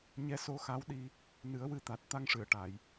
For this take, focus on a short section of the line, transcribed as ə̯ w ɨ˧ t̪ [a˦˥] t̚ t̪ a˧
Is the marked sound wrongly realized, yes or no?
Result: yes